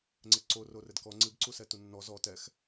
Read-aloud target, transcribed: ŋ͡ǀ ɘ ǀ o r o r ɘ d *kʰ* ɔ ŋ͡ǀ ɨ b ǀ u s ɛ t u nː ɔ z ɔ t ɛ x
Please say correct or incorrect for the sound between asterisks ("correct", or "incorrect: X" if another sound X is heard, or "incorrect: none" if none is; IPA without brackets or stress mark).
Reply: incorrect: k